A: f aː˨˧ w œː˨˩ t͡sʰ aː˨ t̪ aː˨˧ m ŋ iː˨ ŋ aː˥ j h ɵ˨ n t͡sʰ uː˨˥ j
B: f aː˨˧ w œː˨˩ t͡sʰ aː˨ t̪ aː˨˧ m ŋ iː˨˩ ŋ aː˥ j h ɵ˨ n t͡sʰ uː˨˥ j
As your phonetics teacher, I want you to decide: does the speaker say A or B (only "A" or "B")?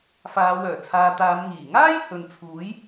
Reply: B